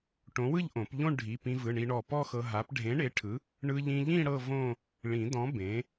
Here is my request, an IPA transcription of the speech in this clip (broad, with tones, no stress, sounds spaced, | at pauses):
ʈ õ˨˥ w ɯ˥˧ ʎ ʔ õ˨˩˦ p ʎ õ˥˧ ɳ ɖʱ i˩˧˩ p ĩ˧ v ɯ˩˧˩ ɳ i˧ ɳ ɔ˧˩ p ɔ˥˧ x ɤ˧ ɦ a˨˥ p ɖʱ ẽ˨˥ ɳ e˨˥ ʈʰ ɯ˨˥ | ɳ ɯ˧ ʎ ĩ˧ ʎ ĩ˥˧ ɽ ɤ˥˧ v õ˥˧ | ɭ ĩ˨˩˦ d ɔ̃˨˥ b ẽ˨˥